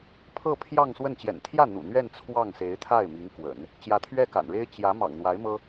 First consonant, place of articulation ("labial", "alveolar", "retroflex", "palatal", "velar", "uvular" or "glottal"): labial